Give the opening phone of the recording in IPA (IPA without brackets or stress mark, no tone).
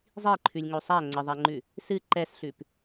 zˤ